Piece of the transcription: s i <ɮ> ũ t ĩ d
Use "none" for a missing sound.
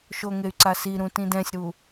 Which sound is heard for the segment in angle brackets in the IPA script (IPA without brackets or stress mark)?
ɾ